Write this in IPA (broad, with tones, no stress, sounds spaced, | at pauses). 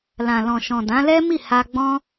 l ã˨ l ɔ̃˨ ʃ ɔ̃˨ d ã˨˦ l ɛ˦ m i˦˨ h a˧ ɡ͡b ɔ̃˦